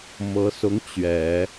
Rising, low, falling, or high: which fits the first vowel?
rising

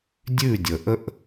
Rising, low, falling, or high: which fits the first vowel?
falling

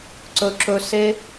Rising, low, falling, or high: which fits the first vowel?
high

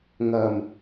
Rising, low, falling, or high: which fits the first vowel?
low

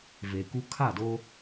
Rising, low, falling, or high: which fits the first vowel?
low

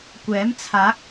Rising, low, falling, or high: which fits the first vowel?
rising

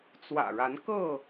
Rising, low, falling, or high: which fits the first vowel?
low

